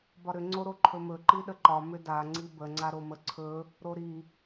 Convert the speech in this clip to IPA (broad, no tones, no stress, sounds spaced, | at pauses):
b ɒ ɾ ʏ ŋ͡ǀ o ɾ o ǃʰ ɵ m ɵ ǃ i ɗ ə ǃ ɒ m ʏ d a ŋ͡ǀ i b ə ŋ͡ǀ a ɾ o m ə ǀʰ ɵ | ɾ o ɾ i